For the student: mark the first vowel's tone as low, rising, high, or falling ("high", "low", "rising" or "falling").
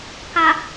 low